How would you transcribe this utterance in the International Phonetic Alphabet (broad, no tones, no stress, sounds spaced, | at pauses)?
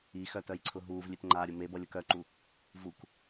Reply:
i x œ t œ j ǀʰ ʊ ɦ uː v lʲ e t ŋ͡ǃ aː ɾʲ ʊ m e b ʌ lʲ ʌ k œ ǃ u | v u k